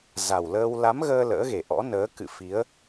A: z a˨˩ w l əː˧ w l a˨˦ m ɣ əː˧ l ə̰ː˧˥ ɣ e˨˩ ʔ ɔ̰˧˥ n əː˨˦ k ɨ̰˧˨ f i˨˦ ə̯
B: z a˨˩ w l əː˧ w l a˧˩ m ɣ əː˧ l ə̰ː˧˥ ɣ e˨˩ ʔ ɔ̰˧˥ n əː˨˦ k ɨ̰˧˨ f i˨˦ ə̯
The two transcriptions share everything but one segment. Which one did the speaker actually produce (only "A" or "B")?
A